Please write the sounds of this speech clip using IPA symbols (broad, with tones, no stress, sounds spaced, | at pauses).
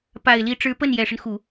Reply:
p a˨˩ ɪ̯ l i˧˥ ʈ͡ʂ ɻ̩˧˥ p ə˥˩ n j ɛ˨˩ ʂ ə˦ n x u˨˩˦